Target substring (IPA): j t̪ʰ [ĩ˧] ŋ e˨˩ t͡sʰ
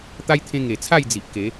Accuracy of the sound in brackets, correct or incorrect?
incorrect: ẽ˧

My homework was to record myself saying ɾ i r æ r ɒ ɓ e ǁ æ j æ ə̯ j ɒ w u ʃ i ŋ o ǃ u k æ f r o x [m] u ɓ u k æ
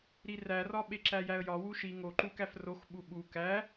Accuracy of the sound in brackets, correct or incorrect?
incorrect: ɓ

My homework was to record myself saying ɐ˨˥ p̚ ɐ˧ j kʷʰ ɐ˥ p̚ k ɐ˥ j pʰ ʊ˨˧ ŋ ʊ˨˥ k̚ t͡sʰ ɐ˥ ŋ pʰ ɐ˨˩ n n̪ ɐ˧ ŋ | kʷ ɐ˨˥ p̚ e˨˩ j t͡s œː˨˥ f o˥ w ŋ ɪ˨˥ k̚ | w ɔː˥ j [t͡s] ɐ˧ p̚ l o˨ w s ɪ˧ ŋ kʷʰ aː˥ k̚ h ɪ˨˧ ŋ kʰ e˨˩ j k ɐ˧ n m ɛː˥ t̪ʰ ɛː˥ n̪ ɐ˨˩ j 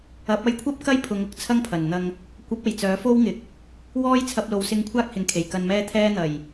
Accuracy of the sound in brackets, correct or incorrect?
incorrect: t͡sʰ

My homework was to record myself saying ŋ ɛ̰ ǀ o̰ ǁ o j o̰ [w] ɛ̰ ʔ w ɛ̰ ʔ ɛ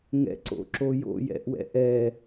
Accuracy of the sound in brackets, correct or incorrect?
incorrect: j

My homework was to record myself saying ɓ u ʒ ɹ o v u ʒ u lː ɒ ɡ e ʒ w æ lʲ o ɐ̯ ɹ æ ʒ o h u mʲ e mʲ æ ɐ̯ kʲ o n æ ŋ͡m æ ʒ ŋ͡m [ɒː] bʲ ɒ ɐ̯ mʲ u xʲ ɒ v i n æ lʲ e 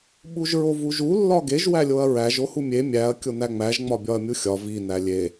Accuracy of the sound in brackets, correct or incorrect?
incorrect: ɒ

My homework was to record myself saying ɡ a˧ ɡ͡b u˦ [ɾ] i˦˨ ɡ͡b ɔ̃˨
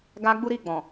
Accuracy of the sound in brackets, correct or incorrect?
correct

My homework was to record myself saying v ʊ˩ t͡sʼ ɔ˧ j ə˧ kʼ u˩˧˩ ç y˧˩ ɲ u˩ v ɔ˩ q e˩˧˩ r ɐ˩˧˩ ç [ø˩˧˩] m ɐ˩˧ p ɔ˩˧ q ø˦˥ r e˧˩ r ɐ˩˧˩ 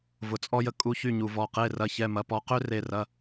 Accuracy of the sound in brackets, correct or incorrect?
incorrect: ɛ˩˧˩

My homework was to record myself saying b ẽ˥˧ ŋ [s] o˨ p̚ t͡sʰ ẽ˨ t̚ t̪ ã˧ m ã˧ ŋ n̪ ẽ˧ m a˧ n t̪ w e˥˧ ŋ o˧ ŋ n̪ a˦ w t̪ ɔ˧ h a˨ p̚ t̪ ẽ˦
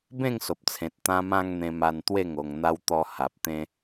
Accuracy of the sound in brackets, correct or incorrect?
correct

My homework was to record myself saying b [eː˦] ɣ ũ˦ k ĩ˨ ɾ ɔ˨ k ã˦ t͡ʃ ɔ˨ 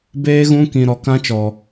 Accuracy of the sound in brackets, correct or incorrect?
correct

